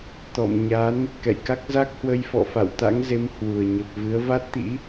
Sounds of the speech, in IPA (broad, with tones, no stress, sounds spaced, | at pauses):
t̪ ɔ̰˧˨ m ɲ a˨˦ n | k ɛ̰˧˨ j k a˦˥ k̚ z a˦˥ k̚ h w ə˧ j f ɔ̰˧˨ f a̰˧˨ w t̪ a̰˧˥ ŋ z e˨˦ m h w u˨˩ ə̯ ɲ ə˨˩ p̚ v ɨ˨˦ ə̯ v a˦˥ t̚ t̪ ḭ˧˥